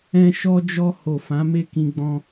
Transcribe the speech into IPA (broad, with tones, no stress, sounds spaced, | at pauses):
ɛ̃˦ ʃ ɔ˦ d͡ʒ ɔ˦ h o˦˨ f ã˨˦ m e˦˨ k ĩ˧ ɡ͡b ɔ̃˧